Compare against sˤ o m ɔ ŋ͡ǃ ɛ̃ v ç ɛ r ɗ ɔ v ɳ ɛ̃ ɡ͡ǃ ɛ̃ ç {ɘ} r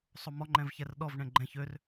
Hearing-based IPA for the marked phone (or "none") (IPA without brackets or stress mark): ø